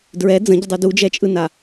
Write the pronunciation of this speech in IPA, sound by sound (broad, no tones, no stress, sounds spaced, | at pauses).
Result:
d ɹ ɛ d͡z ə̃ ɟ ə dˤ u d u d͡ʒ ɛ t͡ʃʼ ɯ n a